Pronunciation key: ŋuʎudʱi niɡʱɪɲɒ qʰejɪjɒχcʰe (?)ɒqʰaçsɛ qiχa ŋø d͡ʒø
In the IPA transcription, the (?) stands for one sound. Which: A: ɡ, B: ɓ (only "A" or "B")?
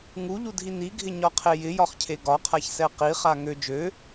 A